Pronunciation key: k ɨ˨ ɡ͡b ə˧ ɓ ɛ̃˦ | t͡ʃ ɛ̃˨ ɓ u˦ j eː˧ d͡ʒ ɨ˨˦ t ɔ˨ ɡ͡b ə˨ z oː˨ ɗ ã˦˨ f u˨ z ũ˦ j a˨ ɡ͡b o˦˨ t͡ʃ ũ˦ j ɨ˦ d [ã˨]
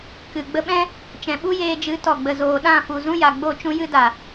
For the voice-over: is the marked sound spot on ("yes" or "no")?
no